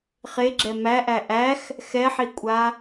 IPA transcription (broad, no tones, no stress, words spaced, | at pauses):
χeɡ͡ǁɛ mæʔæ ʔæx | xɛħikʷʼa